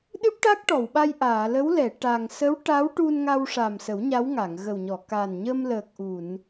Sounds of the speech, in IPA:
ɗɨ˦˥p̚ʈa˦˥k̚ ʈɔ˨˩˨wɓa˧jʔaː˨˩˨lə˧˥w lɛ˨˩˨ ʈa˨˩ŋ sə˧˥w ʈa˧˥wʈu˧nŋa˧w ʂa˨˩msə˨˩˦w ɲa˧˥wŋa˨˩˨ŋ ɣə˨˩wɲɔ˨˩˨ kaː˨˩nɲəː˧m ləː˨˩k̚ʔu˨˩˨n

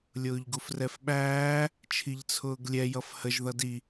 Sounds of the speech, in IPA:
lʲʊːʎɡufrɛfɓæː | t͡ʃʰiʎt͡sʰʊːɡlʲɛ jʌfhəʒ ðʌdi

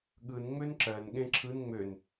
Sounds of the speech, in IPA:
ɠɯn ŋ͡mønǁɜn ɠẽǁʰɯn ŋ͡møn

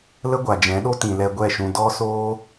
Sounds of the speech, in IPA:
lə˦ɡʷa˨d͡ʒɛ̃˨˦ɗo˦ tĩ˨lɛ˧ɡʷɛ˦˨ ʃũ˨ dɔ˦soː˦

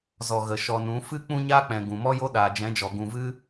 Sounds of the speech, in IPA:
zɔ˨ ɣə˨ ʃɔ˨nũ˨˦ fɨ˦ k͡pũ˧ɲaː˧k͡pɛ̃˨ ɡũ˨mɔ˦jo˦ ɗaː˨d͡ʒɛ̃˨˦d͡ʒɔ˨ ɡũ˨vɨ˧

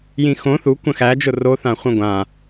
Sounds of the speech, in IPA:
jĩxõ θu kʷə̃xæd͡ʒʊ roθã χʷə̃ɡʷã

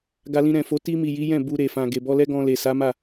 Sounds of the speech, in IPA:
ɡa˧lĩ˧ɾɛ̃˨ fo˨˦ ti˧mi˨ ji˨˦jɛ̃˦˨ bu˧ɾe˨fã˨ ɡe˨bɔ˧lɛ˦ ɡɔ̃˧le˨ sa˨˦ma˦˨

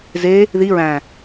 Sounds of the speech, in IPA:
ze | ði ɹæ̃

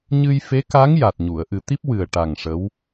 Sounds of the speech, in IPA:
ɲɨ˧jfe˧˥ka˧˥ŋja˨˩t̚ ɲu˨˩˨ə̯ʔɨ˨˩˦t̪i˦˥p̚ wɨ˨˩ə̯ʈa˨˩ŋ ʂə˧˥w

